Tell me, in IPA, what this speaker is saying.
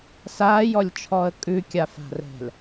s aː j ɔ lʲ t͡ʃʰ ɔ ə̯ kʼ ʉ kʲ a f a̤ r ɛ̤ l

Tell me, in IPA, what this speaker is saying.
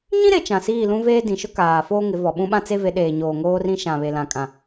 ɲ ĩ˦ ɾ e˨ t͡ʃ ã˨ s iː˦˨ l ũ˦ v eː˦ d ĩ˨ ʃ ʊ˦ k aː˨ f oː˦ ŋ ɪ˨˦ v ɔ˨ ɓ ũ˦ ɓ ã˦ t͡s e˦ v e˨˦ ɗ eː˨ ɲ oː˨ ŋ oː˦ r ĩ˦ ʃ ã˨ β e˨ l ã˨ kʼ ã˨

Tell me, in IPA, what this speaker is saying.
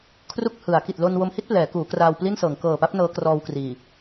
kʰ r u˥˩ k̚ h ɯ˩˦ a̯ k i˨˩ t̚ l o˧ n w o˧ m h i˥˩ t̚ p l ɛː˩˦ k uː˩˦ k r aː˧ w p l i˥˩ n s ɤː˩˦ ŋ k ɤː˨˩ p a˦˥ p̚ n ɤː˦˥ k r ɔː˧ w k r iː˨˩

